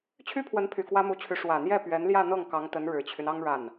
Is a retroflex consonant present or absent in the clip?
present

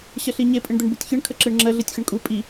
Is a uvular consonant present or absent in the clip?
absent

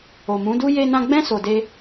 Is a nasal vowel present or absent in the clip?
present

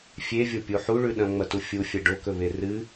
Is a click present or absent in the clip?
absent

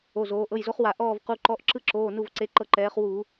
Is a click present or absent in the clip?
present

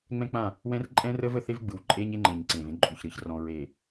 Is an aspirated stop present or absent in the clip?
absent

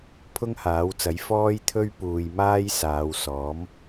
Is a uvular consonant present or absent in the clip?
absent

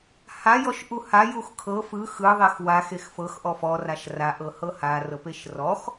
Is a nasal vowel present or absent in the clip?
absent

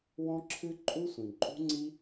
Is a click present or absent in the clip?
present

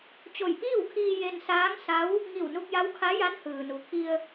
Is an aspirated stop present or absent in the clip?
present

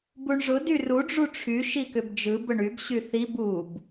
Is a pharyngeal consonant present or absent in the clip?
absent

